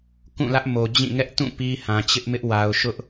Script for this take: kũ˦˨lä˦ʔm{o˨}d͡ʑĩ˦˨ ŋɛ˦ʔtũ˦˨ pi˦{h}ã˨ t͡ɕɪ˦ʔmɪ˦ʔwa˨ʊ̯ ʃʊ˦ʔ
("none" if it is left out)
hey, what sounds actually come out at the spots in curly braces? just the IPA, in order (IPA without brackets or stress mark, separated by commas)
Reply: o˨, h